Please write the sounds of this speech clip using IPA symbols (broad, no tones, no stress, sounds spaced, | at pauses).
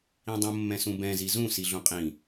ĩ dˤ ũ mː ɛ̃ s ũ b ɛ̃ z i z ũ s i ɮ ũ qʼ ĩ